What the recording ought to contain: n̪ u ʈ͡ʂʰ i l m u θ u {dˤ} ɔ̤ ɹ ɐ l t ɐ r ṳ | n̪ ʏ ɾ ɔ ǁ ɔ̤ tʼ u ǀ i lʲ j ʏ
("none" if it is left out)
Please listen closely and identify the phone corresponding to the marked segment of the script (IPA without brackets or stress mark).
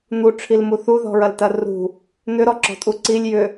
ð